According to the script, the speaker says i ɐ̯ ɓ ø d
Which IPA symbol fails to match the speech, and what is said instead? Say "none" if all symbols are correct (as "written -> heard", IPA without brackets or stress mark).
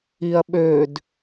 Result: none